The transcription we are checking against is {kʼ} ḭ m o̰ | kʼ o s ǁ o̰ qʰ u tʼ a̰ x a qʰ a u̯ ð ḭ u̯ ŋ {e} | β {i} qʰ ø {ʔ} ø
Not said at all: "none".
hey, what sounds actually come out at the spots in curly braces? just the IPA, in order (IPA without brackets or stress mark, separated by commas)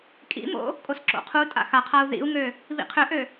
kʼ, ø, ḭ, ʔ